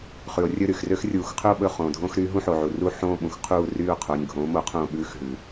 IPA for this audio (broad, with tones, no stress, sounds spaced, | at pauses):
χ ʉ˩ o̯ rʲ ɵ˦˨ ɾ y˩ x r ø˦ x rʲ uː˩ x qʰ ɵ˦˨ o̯ ɓ ɵ˦˨ χ õː˩ dʱ õː˦ x ɾ y˨˥ ɦ ũ˦ ħ o˩ ʕ u˩ r u˦˨ ħ õː˦˨ ɓ ũ˩ x qʰ uː˦˨ r yː˦˨ o̯ qʰ o˩˧˩ nʲ ɡʱ õː˨˥ m o˨˥ qʰ õː˦˨ ɓ ʉː˦ x ɦ ʉ˩